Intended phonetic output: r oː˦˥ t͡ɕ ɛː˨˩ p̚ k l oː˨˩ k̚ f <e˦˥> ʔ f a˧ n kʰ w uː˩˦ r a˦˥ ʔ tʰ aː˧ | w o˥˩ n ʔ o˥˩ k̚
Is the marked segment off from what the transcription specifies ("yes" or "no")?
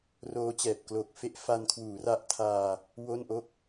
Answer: no